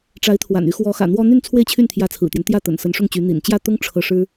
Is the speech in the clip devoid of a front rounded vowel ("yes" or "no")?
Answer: no